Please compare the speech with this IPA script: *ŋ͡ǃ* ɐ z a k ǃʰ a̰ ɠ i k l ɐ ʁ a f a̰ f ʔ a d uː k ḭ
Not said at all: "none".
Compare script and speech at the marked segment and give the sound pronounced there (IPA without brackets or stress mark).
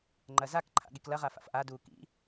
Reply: ŋ͡ǃ